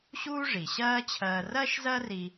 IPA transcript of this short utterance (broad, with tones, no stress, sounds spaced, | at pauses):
ɕ uː˥ ʐ i˩ ɕ ɜː˥ t͡ɕʰ ɜː˧ r ɜ˥ ʃ z ɜ˥ r i˧